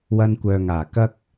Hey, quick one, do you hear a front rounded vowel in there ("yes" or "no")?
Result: yes